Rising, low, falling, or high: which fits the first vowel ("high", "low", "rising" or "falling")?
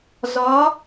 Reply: rising